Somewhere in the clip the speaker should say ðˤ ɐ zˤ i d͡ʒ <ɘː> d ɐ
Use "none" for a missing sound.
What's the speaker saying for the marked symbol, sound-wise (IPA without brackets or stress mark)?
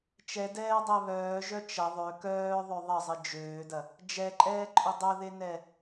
øː